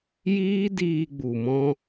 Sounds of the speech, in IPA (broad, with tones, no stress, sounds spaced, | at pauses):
j iː˦ d iː˧ ɡ͡b u˨ m ɔ̃˧